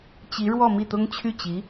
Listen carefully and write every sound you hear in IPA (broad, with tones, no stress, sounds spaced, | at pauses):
t͡ɕ i˧˥ ɻ w ɔ˥˧ m i˥˩ t̪ ʊ˥ ŋ t͡ɕʰ y˥˩ t͡ɕ i˧˥